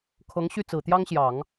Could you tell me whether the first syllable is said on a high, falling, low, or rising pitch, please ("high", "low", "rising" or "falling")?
rising